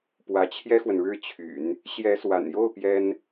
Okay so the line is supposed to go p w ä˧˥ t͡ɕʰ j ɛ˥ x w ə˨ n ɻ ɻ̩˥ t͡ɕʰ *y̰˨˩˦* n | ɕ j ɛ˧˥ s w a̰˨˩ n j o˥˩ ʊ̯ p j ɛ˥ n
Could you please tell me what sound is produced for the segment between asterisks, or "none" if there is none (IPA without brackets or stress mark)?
y̰˨˩˦